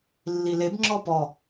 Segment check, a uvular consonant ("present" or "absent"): absent